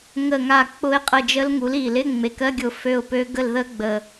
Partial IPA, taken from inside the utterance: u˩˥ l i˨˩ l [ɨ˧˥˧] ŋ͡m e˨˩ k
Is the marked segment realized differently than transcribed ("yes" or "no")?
yes